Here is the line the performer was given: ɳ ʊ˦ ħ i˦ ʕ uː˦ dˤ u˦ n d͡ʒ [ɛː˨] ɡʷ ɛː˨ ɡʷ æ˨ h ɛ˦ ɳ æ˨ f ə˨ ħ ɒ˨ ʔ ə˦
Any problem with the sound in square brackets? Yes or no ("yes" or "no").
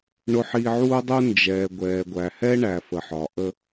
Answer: no